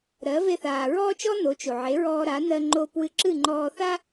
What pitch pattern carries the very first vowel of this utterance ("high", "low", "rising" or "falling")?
rising